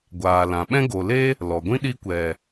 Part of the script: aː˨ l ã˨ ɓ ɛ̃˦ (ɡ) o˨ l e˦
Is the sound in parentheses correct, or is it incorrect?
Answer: correct